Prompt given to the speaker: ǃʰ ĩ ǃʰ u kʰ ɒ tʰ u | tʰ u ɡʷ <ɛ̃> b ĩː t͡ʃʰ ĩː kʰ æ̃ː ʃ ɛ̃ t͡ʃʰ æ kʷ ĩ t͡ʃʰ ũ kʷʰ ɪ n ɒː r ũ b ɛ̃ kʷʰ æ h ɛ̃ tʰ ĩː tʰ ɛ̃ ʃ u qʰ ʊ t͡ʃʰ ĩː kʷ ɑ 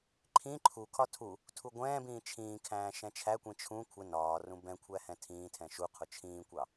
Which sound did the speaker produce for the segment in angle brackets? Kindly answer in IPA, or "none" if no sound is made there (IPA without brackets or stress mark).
ɛ̃ː